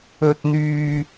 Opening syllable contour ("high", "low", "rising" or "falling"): low